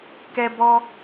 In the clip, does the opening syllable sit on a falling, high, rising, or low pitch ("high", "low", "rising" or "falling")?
high